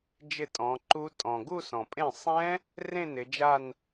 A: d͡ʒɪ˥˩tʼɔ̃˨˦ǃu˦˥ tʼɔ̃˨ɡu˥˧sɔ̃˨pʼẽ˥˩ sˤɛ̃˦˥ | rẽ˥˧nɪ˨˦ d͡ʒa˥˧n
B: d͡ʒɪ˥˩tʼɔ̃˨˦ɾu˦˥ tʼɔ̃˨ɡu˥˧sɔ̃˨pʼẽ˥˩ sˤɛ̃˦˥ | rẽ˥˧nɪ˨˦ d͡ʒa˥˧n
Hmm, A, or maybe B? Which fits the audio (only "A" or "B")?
A